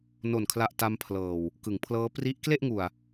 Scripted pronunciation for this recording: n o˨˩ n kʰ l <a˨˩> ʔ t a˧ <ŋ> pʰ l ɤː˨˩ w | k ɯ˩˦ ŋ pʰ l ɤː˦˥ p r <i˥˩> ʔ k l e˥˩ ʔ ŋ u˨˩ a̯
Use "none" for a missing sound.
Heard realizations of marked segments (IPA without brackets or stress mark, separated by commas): a˨˩, m, i˦˥